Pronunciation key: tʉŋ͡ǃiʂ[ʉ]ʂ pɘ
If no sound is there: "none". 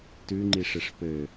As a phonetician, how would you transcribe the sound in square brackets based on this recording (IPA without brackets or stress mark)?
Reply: ɘ